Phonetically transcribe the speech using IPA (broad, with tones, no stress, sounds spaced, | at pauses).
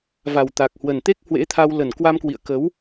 v a˨˩ w t̪ a˨˩ k̚ h w ə˨˩ n t̪ e˦˥ k̚ h w ḛ˧˥ t̪ʰ a˧ w l ə˨˩ n k w a˧ m k w ḭ˧˨ ə̯ k ə˨˦ w